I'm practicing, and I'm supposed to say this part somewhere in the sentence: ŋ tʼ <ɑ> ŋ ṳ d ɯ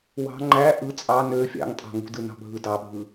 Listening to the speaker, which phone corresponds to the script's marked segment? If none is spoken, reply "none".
ɑ̤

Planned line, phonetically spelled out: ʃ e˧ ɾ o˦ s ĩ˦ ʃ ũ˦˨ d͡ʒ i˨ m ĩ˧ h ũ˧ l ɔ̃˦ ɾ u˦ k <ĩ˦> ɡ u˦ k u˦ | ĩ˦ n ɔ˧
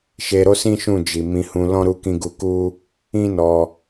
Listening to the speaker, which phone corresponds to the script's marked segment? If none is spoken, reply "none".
ĩ˦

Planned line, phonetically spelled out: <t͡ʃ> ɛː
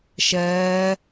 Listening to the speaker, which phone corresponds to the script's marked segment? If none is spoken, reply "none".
ʃ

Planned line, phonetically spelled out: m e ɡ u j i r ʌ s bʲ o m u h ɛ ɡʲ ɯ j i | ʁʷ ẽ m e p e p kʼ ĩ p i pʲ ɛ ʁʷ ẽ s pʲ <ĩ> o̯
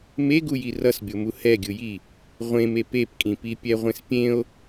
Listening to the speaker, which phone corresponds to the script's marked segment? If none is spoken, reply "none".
ẽ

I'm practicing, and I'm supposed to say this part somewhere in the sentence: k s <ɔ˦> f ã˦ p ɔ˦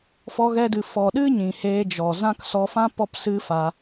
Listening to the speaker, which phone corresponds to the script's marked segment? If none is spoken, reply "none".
ɔ˧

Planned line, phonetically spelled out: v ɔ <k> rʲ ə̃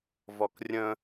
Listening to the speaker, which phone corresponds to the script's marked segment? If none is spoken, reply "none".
k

